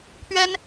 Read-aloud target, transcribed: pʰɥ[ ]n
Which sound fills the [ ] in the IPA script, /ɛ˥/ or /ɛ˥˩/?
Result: ɛ˥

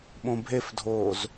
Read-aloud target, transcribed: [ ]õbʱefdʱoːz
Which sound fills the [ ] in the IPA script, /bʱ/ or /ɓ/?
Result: ɓ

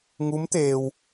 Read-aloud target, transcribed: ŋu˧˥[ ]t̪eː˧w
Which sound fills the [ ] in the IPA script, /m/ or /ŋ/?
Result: m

